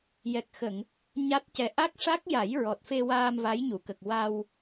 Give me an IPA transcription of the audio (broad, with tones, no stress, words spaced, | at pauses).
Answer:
jɛ˨˩k̚xə˨˩˨ŋ | ɲa˦˥t̚cɛ˧˥ ʔa˦˥k̚ʂa˦˥k̚ja˨˩˦j ɹɔ˨˩t̚fe˧ waː˧mva˧˥jɲu˨˩˨kə˨˩k̚ wa˧w